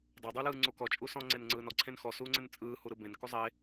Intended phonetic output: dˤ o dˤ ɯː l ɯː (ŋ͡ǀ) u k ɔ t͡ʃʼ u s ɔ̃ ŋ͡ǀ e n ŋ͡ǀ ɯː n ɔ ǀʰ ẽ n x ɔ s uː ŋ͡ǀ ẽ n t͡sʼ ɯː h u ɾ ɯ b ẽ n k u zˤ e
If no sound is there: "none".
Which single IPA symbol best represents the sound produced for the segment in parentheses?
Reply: ŋ͡ǀ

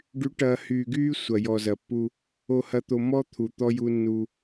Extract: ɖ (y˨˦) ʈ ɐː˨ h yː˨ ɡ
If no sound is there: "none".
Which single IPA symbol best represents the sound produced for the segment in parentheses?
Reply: y˨˦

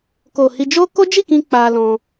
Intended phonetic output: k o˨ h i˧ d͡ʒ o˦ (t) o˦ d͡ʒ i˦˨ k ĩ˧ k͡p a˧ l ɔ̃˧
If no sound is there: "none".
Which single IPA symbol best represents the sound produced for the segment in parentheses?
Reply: k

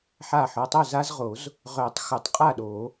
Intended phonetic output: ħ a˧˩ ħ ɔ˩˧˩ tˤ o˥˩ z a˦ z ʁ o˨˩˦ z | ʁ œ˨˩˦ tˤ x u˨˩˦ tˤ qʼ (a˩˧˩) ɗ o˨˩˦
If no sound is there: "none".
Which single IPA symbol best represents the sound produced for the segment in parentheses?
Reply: a˥˩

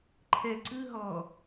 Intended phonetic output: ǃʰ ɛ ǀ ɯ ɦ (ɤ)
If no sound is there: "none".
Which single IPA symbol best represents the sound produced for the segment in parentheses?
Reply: ɔ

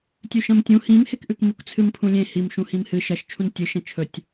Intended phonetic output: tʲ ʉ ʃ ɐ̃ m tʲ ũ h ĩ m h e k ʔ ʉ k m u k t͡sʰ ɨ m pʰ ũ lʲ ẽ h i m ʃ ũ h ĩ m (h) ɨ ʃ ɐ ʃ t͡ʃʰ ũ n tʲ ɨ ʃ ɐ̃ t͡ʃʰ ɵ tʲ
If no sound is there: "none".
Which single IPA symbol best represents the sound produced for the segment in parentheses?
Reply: h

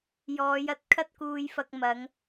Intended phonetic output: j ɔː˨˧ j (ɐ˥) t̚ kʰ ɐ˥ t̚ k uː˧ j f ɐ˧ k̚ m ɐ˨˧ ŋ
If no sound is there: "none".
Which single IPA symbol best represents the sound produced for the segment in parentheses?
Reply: ɐ˨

